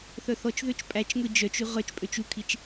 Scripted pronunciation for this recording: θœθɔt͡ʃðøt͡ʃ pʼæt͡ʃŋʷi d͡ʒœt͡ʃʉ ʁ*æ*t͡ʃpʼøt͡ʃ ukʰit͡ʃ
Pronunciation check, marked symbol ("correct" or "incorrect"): incorrect